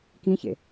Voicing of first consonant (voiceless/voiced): voiceless